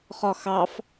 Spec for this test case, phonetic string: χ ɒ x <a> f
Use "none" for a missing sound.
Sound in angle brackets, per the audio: ɑ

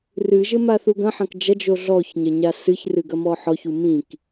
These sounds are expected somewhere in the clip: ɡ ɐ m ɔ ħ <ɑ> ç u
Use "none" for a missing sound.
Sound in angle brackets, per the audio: ɔ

